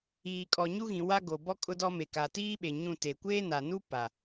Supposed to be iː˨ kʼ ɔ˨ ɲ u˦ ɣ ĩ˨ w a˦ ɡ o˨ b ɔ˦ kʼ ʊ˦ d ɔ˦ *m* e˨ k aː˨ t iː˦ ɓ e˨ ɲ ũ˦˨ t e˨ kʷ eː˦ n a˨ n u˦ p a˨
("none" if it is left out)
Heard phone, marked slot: m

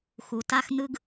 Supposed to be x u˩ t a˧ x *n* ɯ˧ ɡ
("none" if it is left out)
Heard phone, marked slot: n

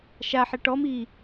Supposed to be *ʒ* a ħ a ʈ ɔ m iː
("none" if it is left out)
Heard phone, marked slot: ʃ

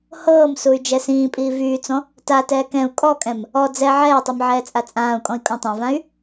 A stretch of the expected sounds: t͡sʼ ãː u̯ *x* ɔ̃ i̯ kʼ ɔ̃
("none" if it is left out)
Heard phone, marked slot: kʼ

